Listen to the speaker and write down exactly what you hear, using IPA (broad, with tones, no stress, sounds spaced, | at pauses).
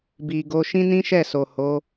b i˨ ɡ o˧ ʃ ĩ˦ n ĩ˦ ʃ ɛ˦˨ s o˨ h o˨˦